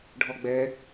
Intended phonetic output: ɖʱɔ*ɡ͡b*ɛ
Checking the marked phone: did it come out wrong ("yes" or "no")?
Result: no